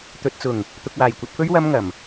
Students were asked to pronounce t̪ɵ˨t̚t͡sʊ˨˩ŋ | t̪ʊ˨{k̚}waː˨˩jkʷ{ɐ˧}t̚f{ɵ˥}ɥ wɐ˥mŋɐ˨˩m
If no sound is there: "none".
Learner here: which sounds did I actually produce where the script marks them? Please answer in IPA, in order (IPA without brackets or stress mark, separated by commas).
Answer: k̚, ɐ˧, ɵ˥